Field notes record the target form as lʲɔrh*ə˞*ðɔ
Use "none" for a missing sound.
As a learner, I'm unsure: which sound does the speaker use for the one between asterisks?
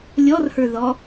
ə˞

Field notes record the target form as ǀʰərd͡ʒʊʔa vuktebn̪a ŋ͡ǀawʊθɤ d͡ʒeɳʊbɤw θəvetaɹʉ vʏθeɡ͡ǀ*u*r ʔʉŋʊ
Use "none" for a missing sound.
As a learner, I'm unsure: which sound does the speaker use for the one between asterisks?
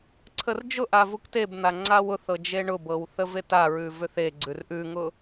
ʉ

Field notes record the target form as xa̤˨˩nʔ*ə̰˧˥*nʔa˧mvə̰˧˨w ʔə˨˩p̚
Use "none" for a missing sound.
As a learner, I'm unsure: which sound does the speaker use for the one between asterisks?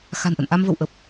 ə̰˧˨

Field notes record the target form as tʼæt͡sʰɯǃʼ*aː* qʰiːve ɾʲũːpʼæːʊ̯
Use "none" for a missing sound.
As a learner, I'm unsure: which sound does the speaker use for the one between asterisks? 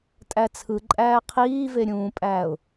æː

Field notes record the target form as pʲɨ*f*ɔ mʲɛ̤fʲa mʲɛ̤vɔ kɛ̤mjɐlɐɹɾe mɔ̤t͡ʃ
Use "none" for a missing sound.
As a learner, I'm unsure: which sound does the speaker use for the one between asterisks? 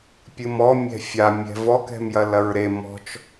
m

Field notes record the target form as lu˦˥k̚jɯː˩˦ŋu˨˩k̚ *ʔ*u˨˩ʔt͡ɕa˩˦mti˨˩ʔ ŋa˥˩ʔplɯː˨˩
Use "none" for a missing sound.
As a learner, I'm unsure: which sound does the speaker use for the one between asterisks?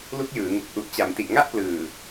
ʔ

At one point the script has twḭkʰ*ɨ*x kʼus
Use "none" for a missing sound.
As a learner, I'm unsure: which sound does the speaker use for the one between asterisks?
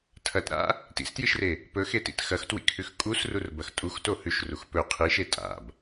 ʉ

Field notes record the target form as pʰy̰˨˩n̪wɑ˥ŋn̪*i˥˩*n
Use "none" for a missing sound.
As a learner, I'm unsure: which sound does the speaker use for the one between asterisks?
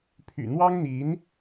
i˧˥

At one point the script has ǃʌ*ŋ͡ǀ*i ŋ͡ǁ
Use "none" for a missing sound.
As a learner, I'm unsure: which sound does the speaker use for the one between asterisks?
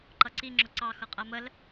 ǀ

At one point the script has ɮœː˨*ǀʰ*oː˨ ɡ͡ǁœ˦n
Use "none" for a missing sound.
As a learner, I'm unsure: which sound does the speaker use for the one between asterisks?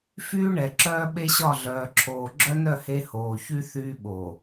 ǁʰ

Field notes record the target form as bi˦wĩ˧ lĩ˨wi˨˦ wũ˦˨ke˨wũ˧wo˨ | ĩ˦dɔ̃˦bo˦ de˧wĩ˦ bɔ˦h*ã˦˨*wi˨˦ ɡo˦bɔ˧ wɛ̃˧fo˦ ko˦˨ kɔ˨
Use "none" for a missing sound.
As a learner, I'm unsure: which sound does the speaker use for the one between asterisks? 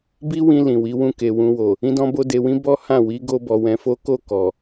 ã˦˨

